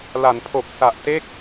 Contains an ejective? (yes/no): no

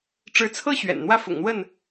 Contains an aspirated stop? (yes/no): yes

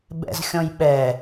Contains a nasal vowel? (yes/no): yes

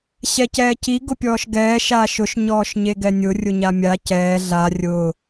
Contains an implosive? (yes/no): no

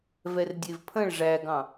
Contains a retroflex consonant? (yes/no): yes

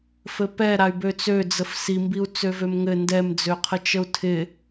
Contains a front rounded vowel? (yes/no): yes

